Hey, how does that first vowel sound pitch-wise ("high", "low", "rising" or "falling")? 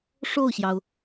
falling